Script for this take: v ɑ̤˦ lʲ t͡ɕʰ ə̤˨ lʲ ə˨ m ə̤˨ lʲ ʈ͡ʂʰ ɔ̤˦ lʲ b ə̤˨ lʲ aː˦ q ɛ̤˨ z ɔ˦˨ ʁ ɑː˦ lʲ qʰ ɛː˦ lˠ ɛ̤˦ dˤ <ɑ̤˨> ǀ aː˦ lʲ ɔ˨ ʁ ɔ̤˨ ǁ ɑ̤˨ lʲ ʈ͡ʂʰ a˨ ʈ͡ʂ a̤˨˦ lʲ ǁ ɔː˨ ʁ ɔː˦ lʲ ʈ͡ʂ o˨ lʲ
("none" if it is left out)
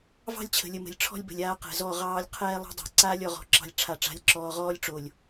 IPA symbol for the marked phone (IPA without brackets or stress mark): a̤˨